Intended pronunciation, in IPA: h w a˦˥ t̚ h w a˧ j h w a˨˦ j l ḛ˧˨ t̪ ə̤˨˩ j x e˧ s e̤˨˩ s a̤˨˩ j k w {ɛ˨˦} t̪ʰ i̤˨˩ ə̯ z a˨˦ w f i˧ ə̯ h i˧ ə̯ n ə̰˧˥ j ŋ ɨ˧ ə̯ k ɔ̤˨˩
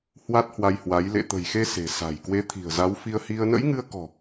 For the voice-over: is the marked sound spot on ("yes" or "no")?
no